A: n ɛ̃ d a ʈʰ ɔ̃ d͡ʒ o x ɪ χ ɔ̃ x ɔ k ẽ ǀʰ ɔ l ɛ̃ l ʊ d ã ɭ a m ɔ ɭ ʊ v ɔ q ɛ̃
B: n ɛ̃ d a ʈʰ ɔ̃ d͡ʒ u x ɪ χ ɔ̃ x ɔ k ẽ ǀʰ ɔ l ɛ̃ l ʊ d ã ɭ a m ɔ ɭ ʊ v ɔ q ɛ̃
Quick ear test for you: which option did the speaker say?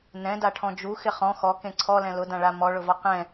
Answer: B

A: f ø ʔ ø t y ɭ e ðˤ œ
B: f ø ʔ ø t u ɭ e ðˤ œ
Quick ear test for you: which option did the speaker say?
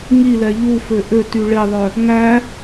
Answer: A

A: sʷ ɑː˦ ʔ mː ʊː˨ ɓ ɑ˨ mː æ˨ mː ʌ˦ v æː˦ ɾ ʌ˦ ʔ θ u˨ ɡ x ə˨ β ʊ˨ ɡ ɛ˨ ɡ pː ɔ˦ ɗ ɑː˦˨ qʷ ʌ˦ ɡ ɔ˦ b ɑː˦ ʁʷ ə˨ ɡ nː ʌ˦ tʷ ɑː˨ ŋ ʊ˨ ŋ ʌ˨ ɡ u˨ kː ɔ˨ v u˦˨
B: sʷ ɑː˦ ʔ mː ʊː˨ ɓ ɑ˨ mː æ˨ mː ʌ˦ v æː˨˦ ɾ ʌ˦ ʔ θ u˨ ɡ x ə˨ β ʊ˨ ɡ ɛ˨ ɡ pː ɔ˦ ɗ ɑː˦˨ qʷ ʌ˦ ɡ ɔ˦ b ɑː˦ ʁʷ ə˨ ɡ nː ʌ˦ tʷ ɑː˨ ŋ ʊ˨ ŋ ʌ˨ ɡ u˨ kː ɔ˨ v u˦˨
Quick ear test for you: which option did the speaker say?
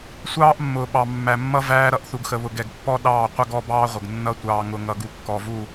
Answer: A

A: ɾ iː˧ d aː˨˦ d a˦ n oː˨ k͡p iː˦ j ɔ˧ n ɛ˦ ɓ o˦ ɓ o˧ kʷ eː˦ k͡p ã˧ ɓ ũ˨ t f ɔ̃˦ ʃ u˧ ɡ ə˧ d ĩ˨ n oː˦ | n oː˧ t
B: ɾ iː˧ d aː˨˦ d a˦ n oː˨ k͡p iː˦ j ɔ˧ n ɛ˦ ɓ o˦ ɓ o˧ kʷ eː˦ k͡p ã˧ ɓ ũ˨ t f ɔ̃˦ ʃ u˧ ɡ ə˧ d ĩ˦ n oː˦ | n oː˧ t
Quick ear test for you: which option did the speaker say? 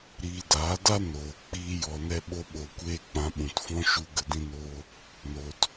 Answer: B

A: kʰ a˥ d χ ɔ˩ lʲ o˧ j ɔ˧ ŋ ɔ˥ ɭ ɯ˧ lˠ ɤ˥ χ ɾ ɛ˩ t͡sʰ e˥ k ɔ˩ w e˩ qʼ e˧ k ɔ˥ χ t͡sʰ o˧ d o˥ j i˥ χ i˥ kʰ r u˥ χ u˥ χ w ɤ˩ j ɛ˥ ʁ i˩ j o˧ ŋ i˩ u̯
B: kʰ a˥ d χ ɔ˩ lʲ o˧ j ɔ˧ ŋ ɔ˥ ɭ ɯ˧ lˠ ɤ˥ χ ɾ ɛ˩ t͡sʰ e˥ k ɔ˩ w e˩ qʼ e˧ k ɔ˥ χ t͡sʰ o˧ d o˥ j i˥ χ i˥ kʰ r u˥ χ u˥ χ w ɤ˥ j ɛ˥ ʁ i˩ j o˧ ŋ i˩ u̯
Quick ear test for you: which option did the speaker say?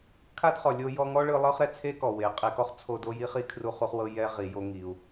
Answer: B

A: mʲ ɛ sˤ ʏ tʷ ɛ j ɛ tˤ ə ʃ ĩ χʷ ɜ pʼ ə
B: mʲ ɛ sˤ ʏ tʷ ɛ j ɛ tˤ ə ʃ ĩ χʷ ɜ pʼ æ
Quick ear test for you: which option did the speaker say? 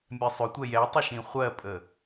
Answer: A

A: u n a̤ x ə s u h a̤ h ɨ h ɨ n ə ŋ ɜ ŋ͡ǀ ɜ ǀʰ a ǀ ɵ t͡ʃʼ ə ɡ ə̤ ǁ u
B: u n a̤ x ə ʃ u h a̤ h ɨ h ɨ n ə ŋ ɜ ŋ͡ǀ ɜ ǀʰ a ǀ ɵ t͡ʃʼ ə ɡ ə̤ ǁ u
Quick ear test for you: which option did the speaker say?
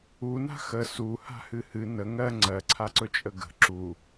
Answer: A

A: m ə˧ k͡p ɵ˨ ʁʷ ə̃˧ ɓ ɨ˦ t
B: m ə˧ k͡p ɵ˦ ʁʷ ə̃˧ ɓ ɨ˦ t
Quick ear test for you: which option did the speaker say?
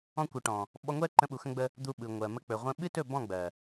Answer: A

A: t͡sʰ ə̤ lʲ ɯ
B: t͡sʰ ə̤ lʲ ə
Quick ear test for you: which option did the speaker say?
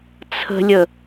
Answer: B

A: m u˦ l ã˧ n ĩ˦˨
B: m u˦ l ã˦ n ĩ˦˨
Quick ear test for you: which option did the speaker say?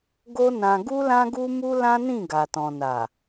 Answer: B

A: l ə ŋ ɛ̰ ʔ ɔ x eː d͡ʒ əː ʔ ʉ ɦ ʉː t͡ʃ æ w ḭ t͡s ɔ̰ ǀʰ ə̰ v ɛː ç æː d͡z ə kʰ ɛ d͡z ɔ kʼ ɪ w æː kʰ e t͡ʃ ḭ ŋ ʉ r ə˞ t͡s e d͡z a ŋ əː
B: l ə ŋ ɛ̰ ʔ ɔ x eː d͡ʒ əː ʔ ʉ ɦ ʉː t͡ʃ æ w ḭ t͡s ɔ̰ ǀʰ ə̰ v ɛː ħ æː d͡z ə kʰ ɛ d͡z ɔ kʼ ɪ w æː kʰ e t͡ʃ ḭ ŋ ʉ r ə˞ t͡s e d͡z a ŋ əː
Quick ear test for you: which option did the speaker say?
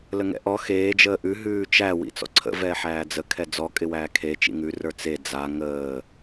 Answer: B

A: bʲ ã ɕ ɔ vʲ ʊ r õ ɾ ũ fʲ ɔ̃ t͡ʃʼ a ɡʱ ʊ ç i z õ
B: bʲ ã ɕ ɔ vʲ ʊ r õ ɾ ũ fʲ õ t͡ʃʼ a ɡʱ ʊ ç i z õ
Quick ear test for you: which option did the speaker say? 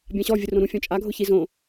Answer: A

